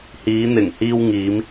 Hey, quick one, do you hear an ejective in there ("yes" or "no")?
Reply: no